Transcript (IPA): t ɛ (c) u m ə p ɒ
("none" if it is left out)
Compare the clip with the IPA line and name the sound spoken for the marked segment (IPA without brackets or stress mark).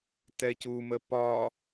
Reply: c